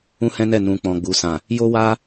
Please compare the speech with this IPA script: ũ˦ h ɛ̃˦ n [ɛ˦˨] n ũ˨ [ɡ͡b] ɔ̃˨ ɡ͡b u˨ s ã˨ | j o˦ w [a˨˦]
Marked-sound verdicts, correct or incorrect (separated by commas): correct, incorrect, incorrect